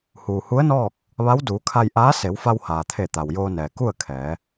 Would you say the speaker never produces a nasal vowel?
yes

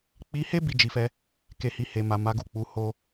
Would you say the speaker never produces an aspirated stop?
yes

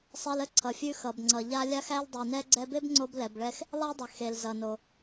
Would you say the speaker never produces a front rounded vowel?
yes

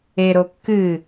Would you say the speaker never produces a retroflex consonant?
yes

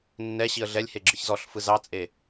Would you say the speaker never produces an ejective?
no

